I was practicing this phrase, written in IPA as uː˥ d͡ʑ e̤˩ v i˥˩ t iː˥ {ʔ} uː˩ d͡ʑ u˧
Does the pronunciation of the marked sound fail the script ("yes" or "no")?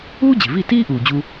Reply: no